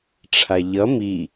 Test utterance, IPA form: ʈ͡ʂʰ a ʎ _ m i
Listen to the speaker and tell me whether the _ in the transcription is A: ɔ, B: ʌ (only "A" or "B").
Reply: B